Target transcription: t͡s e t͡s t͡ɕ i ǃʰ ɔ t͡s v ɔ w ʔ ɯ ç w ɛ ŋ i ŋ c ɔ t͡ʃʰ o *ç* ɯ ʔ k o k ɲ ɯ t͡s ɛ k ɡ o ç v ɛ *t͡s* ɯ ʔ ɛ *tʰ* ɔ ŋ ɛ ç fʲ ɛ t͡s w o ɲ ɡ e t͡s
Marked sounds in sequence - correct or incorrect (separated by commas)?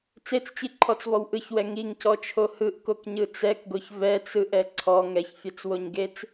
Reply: incorrect, correct, incorrect